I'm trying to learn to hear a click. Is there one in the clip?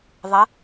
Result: no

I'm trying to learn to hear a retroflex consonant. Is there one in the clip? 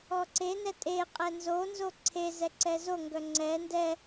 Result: no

